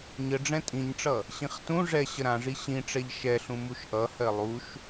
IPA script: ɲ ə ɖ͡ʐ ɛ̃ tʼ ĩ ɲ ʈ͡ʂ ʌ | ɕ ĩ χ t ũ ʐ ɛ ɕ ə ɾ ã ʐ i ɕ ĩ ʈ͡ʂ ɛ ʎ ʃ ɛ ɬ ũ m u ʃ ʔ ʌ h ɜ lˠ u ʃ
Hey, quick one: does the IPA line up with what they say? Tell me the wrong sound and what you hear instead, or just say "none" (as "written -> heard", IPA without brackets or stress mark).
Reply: none